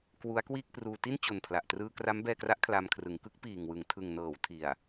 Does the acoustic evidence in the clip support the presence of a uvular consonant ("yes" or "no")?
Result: no